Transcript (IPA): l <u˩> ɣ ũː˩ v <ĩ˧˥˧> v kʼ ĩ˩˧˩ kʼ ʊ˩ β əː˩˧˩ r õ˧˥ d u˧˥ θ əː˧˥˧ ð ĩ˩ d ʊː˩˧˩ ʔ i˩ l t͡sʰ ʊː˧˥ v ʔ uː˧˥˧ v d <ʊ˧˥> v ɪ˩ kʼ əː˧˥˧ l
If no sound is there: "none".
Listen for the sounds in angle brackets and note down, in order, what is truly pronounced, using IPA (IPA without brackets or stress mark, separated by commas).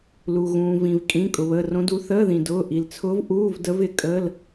u˩, ĩ˩, ə˧˥